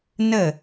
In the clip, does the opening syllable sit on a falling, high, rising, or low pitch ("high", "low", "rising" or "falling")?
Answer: falling